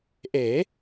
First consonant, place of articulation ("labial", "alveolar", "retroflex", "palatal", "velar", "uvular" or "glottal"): glottal